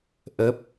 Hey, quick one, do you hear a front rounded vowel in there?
no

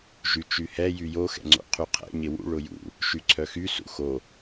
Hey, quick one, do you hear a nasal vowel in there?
no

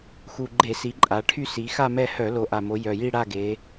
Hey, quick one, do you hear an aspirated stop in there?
yes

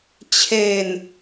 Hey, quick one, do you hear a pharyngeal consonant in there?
no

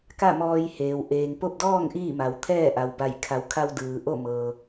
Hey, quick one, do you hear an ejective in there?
no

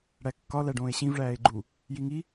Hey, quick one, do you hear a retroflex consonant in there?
yes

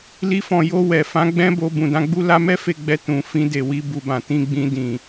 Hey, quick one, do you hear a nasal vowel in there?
yes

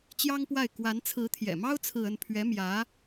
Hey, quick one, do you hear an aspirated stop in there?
yes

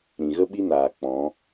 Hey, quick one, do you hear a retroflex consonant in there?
no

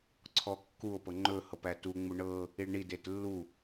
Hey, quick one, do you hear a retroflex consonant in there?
yes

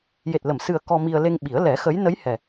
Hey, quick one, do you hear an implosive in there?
yes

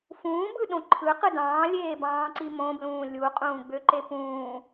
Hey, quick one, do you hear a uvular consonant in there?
yes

